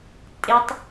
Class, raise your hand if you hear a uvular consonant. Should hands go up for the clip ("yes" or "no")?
no